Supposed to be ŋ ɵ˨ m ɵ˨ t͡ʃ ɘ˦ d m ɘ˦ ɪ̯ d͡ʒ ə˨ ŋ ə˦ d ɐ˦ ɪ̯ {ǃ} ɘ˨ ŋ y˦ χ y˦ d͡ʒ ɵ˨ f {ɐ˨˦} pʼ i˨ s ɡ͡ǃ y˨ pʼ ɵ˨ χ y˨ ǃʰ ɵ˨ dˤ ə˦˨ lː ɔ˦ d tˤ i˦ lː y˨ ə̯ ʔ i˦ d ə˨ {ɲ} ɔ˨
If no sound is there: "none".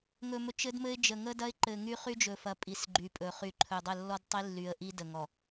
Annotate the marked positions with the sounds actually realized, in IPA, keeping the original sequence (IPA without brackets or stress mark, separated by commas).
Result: ǃ, ɐ˨˦, ŋ